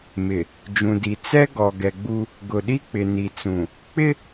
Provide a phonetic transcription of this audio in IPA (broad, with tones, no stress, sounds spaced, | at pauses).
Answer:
m ɪ˨ | d͡ʒ ũ˨ d i˨ t͡s ɛ˦ ɡ ɔ˨ ɡ ɛ˨ ɡ͡b u˦ | ɡ ʊ˨ ɗ i˦ k͡p ɪ˨ n i˨ t͡s ũ˨ | k͡p ɪ˦